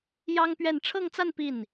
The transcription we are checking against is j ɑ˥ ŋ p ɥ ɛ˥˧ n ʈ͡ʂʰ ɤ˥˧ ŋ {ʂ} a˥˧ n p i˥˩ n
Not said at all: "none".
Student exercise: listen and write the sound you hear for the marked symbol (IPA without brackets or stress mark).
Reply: t͡s